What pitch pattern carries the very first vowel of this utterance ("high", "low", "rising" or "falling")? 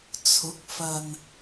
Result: rising